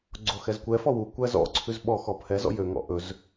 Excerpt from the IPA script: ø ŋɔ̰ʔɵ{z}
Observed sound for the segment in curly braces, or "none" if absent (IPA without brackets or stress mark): z